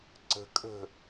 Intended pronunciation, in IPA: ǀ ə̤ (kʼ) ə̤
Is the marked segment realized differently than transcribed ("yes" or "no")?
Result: no